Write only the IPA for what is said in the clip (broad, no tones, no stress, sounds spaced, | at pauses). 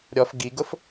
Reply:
ɾʲ ɔ f ɡ i ɡ ʊ f